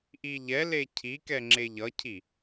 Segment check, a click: present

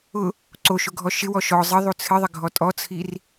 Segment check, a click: present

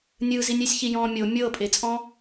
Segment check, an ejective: present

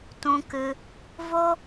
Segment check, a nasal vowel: present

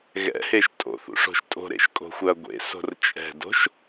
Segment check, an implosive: absent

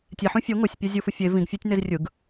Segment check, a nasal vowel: present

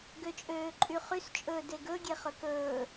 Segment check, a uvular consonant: present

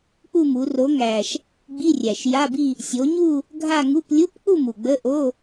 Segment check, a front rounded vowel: absent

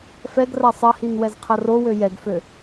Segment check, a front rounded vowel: present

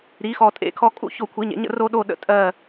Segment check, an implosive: present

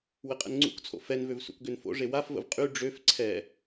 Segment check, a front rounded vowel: present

